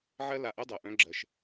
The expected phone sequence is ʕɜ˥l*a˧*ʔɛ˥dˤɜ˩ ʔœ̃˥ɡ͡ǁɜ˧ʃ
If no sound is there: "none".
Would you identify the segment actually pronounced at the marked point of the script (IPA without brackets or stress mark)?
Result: a˧